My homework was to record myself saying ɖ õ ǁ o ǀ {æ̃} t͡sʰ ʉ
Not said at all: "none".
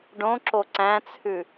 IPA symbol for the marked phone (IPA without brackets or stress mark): æ̃